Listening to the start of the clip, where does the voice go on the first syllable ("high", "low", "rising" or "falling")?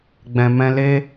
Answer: low